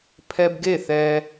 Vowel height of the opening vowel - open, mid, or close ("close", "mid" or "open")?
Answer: mid